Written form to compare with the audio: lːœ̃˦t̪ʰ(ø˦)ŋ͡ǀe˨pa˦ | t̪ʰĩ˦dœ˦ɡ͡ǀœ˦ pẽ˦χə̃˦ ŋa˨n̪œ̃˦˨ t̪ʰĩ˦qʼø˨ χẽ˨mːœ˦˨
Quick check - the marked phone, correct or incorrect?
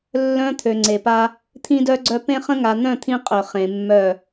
incorrect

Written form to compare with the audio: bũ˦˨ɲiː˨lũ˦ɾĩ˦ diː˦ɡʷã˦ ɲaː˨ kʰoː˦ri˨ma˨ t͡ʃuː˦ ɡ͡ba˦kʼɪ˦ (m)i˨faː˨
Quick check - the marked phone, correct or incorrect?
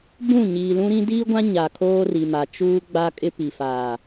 incorrect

